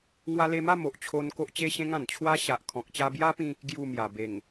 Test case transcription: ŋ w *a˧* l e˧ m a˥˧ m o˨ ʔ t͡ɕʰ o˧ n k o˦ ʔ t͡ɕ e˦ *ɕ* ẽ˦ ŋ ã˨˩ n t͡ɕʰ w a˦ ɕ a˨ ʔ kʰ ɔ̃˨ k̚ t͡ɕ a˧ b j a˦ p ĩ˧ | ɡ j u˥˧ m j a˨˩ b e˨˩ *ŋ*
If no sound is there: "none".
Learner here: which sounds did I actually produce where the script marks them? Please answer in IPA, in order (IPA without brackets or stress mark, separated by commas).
a˧, ɕ, ŋ